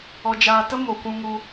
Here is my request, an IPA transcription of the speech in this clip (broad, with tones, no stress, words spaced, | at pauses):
ɔ˧d͡ʒaː˧tə˦ mo˨kʷũ˧ ŋu˧